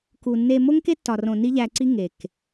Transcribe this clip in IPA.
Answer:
k u˨ nː e˧ m o˦ ŋ k e˦ tː ɒ˨ r õ˨ n i˦ ʎ æ˧ ǀ i˦ ŋ e˨ k

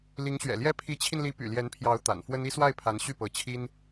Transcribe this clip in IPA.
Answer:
l i˧˥ ŋ ɕ ɥ ɛ̰˨˩ l j ɛ˥ pʰ i˧˥ t͡ɕʰ i˧ n l i˧˥ p y̰˨˩ l j ɛ˧˥ n pʰ j ɑ˧˥ ʊ̯ t̪ a̰˨˩ n f w ə˥ n i˥ s w a˥˩ ɪ̯ pʰ a˧˥ n ɕ y˥˩ p ɤ˧˥ t͡ɕʰ i˥ n

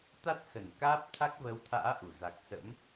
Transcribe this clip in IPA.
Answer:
t̪ a˦˥ t̚ s ə˧˩ n k aː˦˥ p̚ t̪ʰ a˦˥ k̚ v əː˨˦ w t̪ʰ a̰ː˧˥ ʔ u˧˩ z a˨˩ k̚ s ə̰˧˥ m

